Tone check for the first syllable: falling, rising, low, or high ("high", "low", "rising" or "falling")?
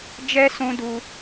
high